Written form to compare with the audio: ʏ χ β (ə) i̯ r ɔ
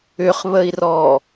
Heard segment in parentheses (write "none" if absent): ə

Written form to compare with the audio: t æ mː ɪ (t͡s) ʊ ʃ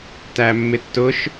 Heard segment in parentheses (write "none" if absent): tː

